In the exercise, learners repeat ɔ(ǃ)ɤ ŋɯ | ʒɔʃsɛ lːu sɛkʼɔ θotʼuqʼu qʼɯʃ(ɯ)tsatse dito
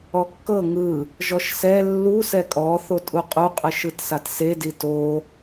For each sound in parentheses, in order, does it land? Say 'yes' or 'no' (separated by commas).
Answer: no, yes